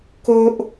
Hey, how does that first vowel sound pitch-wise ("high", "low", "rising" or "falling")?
high